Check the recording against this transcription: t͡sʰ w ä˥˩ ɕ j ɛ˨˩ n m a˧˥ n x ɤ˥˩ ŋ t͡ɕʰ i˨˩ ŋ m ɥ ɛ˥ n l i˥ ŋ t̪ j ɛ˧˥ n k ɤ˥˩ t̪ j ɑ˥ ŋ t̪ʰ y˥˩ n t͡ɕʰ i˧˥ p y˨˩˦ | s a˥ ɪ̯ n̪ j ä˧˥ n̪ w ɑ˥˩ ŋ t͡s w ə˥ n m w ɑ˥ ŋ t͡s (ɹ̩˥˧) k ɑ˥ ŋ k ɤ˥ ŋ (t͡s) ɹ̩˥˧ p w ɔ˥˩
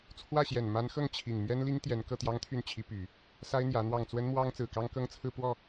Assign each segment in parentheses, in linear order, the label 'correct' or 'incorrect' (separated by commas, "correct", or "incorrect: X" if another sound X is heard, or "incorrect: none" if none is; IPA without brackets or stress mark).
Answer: incorrect: ɹ̩˨˩, incorrect: t͡sʰ